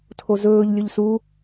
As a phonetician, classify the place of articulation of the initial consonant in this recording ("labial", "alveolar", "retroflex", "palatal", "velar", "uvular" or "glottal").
alveolar